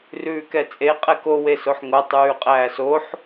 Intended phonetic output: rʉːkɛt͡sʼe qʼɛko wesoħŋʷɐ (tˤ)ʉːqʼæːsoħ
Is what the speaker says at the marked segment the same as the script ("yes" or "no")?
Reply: yes